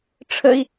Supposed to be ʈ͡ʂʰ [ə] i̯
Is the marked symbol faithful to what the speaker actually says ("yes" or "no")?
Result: yes